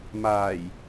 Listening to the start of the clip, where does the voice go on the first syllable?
low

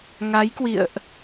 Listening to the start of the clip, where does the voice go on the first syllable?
rising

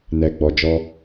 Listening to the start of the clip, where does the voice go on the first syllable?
low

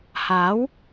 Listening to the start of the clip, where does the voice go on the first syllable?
rising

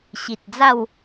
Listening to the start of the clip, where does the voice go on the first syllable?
low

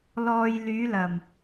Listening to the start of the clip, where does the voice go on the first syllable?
low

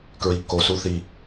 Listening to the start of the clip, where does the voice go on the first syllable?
low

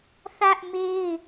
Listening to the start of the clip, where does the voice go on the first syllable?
high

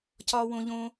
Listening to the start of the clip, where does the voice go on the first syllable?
high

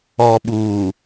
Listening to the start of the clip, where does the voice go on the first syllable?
low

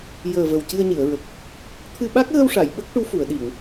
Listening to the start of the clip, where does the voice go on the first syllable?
low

